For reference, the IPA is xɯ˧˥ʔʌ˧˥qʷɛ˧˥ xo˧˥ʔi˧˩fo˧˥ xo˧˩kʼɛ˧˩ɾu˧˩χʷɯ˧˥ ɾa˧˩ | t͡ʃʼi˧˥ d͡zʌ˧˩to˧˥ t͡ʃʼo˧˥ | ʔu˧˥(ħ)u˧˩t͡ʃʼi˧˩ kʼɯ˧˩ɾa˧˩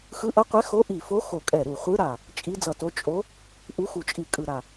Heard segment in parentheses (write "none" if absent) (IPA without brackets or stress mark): x